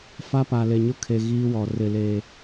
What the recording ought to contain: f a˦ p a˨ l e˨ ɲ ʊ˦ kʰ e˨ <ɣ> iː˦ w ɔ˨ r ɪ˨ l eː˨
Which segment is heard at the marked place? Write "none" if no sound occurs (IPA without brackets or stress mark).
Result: ɣ